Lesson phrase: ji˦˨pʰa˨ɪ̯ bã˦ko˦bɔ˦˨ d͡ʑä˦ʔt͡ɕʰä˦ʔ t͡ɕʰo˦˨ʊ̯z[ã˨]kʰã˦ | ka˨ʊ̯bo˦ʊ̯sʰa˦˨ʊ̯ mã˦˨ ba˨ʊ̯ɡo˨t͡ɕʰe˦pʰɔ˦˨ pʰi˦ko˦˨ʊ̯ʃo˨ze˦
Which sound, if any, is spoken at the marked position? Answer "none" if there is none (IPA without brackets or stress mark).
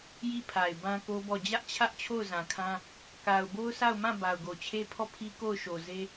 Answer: ã˨